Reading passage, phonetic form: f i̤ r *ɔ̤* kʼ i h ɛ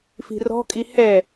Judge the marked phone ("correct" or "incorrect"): correct